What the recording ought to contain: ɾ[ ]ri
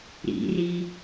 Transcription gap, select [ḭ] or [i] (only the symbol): ḭ